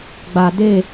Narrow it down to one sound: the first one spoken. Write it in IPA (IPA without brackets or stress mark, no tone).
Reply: ɡ͡b